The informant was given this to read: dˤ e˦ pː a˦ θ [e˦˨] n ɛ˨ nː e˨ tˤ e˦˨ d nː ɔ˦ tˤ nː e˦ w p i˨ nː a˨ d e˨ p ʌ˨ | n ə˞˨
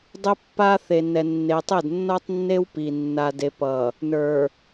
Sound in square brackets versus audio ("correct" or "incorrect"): incorrect